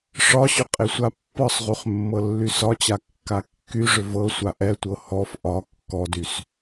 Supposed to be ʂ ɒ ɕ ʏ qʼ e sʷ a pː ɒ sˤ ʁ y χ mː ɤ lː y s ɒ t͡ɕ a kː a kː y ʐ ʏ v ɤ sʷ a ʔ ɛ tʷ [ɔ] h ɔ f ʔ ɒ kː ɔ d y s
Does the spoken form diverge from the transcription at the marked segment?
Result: yes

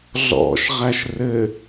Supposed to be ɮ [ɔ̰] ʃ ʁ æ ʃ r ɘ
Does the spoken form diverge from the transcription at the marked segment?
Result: no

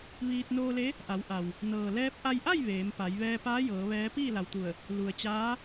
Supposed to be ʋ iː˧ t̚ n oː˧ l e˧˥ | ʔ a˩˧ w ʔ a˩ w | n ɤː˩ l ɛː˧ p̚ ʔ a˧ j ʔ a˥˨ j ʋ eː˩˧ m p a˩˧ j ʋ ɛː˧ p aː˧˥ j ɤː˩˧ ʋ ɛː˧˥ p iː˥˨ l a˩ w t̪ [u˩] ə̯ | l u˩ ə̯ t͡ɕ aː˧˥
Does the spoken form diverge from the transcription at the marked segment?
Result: yes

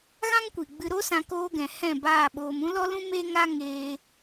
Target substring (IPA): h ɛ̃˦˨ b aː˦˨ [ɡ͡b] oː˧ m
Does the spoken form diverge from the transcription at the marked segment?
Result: yes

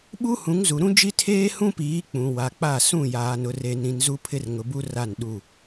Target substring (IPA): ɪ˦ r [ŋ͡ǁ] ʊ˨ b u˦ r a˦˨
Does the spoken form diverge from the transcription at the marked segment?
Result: yes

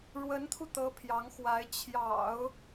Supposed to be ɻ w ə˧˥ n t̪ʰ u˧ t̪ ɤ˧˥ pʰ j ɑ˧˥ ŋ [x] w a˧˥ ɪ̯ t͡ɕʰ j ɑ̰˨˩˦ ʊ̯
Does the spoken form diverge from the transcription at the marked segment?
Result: no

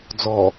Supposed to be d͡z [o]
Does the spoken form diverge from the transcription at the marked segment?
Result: yes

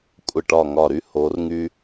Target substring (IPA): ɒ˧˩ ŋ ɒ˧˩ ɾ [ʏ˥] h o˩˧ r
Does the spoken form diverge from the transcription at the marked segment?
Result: yes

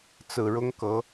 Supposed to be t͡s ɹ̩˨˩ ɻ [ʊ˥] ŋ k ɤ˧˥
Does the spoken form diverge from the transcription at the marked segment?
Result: no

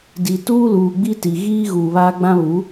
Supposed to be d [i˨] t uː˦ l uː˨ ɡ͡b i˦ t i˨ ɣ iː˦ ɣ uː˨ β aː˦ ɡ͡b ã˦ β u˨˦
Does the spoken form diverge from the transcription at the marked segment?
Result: no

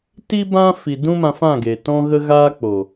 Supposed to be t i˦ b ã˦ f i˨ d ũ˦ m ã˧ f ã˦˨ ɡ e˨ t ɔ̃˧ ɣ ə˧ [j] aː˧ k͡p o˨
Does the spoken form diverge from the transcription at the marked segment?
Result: yes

